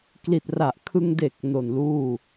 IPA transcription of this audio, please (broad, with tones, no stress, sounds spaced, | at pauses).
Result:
k l i˨˩ t̚ r a˨˩ ʔ kʰ ɯ˧ ŋ d e˨˩ k̚ n o˨˩ n l uː˥˩